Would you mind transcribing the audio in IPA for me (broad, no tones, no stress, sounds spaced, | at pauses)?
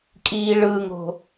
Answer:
kʼ iː ɭ ɯ ŋ o̤